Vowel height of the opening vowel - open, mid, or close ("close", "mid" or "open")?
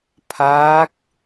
open